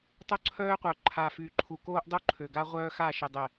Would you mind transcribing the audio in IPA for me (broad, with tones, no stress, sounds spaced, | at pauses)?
tˤ o˦ ǀʰ œː˦ qʷ œ˨ ǃʰ a˨ f y˨ ǃʰ u˨ k oː˦ ʔ dˤ o˦ ǃʰ ø˨ ɡ a˦ ʁʷ œː˦ x a˦˨ ʃ ə˨ dˤ ɛ˨